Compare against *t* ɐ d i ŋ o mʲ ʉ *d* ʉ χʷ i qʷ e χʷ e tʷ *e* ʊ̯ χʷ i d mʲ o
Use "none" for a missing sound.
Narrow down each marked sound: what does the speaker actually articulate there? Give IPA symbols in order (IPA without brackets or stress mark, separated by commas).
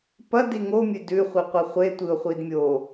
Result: p, d, ɨ